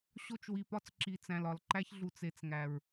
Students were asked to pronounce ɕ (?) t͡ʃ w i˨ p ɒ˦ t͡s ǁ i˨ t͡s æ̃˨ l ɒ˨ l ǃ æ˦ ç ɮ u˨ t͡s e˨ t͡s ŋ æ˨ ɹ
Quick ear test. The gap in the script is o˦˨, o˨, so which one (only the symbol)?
o˦˨